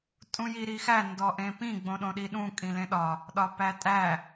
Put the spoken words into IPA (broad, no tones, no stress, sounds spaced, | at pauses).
tʼ ũ j i ɾ i x æ n d ɔ ʔ ẽ p ĩ ɡ͡b õ ɗ õ ɗ i ɗ ũ kʼ ĩ l ẽ ɗ ɒ | ɗ ɒ p æ tʼ æ